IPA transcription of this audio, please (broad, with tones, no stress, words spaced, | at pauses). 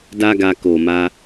da˦ɡa˧ ko˨ ma˧